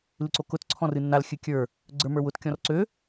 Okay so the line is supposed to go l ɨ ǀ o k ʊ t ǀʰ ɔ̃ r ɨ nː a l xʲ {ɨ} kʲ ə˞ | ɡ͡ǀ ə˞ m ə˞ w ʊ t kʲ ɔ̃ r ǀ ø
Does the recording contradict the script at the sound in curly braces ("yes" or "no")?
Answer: no